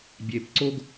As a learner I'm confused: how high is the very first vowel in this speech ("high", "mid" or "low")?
mid